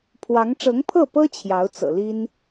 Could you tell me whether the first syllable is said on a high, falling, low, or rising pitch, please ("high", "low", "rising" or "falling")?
rising